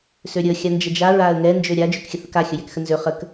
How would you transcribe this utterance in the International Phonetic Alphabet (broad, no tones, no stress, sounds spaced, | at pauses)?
s ø ɾʲ ə xʲ a n d͡ʒ ə d͡ʒ a ɹ a ə̯ ŋ ɛ n d͡ʒ ø ɾʲ a d͡ʒ ø k xʲ ə θ ə k a xʲ ə j ɛ k x ə n z ø χ ə k